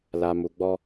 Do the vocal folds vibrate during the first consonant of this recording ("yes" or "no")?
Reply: yes